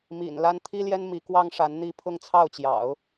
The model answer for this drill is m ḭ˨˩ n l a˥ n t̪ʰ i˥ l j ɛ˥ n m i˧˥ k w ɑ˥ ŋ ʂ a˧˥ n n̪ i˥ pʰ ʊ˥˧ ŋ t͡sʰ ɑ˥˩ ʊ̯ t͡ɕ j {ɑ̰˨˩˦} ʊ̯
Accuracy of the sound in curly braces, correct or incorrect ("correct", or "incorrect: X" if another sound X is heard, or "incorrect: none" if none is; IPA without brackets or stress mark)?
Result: correct